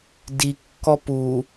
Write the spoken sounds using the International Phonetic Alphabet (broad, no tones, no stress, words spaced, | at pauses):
dikːɔ pu